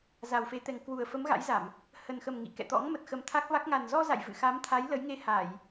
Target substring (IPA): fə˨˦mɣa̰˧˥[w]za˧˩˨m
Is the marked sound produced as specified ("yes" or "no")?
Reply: no